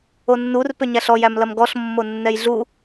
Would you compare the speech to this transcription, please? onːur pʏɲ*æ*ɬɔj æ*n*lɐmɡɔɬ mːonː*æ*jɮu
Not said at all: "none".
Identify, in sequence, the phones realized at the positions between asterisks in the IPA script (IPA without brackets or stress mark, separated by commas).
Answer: æ, m, ɛ